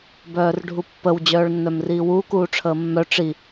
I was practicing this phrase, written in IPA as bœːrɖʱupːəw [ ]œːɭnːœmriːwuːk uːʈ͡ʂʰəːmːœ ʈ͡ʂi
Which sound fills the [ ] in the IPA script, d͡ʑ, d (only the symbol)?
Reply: d͡ʑ